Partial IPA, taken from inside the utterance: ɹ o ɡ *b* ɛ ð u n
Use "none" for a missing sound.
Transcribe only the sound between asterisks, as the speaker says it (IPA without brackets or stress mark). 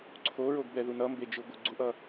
b